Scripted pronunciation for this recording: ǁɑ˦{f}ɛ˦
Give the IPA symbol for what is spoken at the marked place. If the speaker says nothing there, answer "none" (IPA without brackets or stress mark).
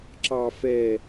f